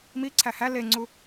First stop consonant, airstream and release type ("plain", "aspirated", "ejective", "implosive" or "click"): click